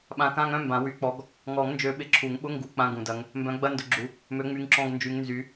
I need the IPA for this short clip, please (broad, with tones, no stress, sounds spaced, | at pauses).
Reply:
ɓ ã˨˦ k ã˧˥˧ ŋ œ̃˧˥˧ m b ã˨˩˦ w y˨˩˦ k͡p ɔ˨˦ ɡ | ŋ ɔ˨˩˦ ŋ n d͡ʒ ø˨˦ ɓ ɪ˨˩˦ ǁʰ u˨˩˦ ŋ ɓ ʊ˧˥˧ ŋ ɡ u˨˩˦ k͡p ã˧˥˧ ɡ ũ˨˩˦ d ɐ˨˦ ŋ | m b œ̃˨˦ ɡ͡b ɐ˧˥˧ n d ʊ˨˦ ɡ͡ǁ u˨˦ | m ø˨˦ ŋ͡m y˨˦ ŋ ǁ ɔ̃˧˥˧ ɡ n d͡ʒ y˨˦ ŋ n z y˨˦